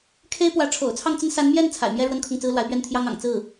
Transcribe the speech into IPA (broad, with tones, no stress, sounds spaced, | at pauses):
kʰ e˥ ɪ̯ p w ä˧˥ ʈ͡ʂʰ o̰˨˩ ʊ̯ t͡sʰ ɑ˥˩ ŋ t͡s ə˥ n s a˧˥ n m j ɛ˥˩ n t͡sʰ a̰˨˩ ɪ̯ m j ɛ˥ ɻ w ə˥ n kʰ ʊ˥˩ ŋ t͡s ɹ̩˥ l w a˧˥ ɪ̯ p ɥ ɛ˥˩ n t̪ʰ j ɑ˥ ŋ ɑ̰˨˩ ŋ t͡s ɹ̩˥˩